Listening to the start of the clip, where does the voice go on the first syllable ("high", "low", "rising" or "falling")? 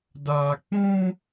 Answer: low